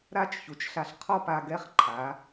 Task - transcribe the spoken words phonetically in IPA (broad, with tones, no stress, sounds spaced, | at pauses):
ɾ a˦˨ t͡ʃ ç u˨ t͡ʃ ɬ a˧ ɬ qʰ ɔ˦ p a˧ ɡ ɛ˦ χ ǃʰ a˨˦